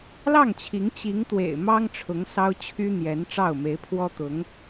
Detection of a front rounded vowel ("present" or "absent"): present